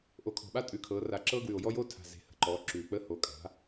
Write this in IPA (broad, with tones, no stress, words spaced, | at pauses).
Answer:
ʔo˨˩kʰɔ̤˨˩ɓa˦ tʼʉ˨˩kʰɤː˩˧ra˨˩ǁɤː˦ ɡwʉ˨˩o̯jɔ˦joː˦tʰa̤˨˩ ze̤˨˩hə̤˩˧ǃɔː˩˧ ǁʉː˨˩k͡pəː˦ ho˩˧kʼa̤˩˧